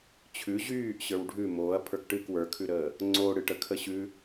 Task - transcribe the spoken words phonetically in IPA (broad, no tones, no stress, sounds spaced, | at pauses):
t͡ɕʰ ʉ ʑ yː ʔ ɕ ə˞ w ɖʱ ʉ m oː ɐ̯ pʰ ə˞ k ʈ ɨ k w ə˞ kʰ ʉ ɾ əː | ŋ͡ǀ o ɽ ɨ ʈ ə kʰ ə ɕ ʉ